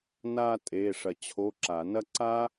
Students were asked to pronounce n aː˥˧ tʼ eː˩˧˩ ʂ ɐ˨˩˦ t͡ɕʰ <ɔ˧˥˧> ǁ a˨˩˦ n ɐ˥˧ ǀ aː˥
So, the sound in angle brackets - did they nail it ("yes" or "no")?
no